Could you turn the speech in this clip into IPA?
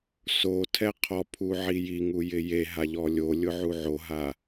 s o tʰ ɛ qʰ ɔ pʰ u ʕ i j i ŋ u j ɪ j e ɦ a ʎ ɔ lʲ o lʲ ʊ ʕ u ʕ o ɦ a

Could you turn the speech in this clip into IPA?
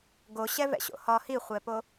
ɡ o ɕ ɛ v ɛ̰ ɕ o̰ h ɒ h i χʷ ɛ p o

